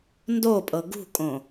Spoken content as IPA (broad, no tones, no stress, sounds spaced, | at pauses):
n d o pʼ ɤ ɡ ṳ kʼ õ